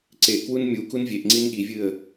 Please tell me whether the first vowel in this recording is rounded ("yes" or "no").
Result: no